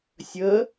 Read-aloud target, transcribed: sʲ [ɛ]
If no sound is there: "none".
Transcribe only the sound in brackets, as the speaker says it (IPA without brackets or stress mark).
ə